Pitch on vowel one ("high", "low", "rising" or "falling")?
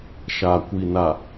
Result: low